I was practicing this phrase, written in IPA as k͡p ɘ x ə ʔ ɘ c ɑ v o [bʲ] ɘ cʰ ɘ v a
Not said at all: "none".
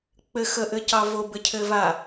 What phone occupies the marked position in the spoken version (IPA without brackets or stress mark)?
b